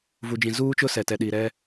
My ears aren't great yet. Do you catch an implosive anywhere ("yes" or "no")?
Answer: yes